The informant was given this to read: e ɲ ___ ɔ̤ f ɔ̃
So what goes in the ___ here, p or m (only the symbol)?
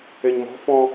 m